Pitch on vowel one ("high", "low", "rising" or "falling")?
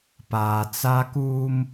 low